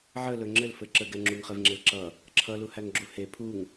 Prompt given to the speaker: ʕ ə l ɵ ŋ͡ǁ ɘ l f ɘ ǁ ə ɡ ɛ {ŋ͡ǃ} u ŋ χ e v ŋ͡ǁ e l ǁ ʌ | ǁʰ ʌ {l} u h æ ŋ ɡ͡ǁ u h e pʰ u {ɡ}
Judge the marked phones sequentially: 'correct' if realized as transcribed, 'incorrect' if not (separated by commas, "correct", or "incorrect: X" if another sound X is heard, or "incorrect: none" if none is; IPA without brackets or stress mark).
incorrect: ŋ͡ǁ, correct, incorrect: ŋ